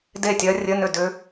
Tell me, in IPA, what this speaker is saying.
d e˥˨ tʲ ɜ˦˥ rʲ ɘ˧˥˧ n ʏ˥˨ d ʏ˦˥

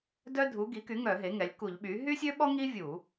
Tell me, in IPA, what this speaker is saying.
d œ˥ dʱ u˩˥ ɡ i˩˥ k y˩˥ ŋ œ˧˩˧ ɦ e˩˥ ŋ ɛ˩˥ lʲ k u˧˩˧ ʎ ɓ y˩˥ ɦ y˥ sʲ ø˥ ɓ ɔ˥ ŋ i˥ vʲ u˧˩˧

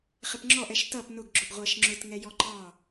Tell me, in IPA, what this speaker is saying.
χ ɪ p ŋ͡ǁ ɔ ʔ ɛ ʃ t ʌ p n ʊ ɡ ɡ͡ǁ ʊ ɡ ʁʷ æ ʃ ŋ͡ǁ ʊ t ŋ ɛ j ɔ ǃ ɑ

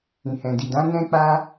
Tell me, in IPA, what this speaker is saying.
ĩ˨ h ɛ̃˨ d i˨ d ã˨˦ n ɛ̃˦ k͡p a˦

